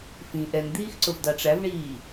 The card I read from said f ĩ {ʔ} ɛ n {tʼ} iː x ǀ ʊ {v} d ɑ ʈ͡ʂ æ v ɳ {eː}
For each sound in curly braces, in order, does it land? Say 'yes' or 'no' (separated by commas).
yes, no, yes, no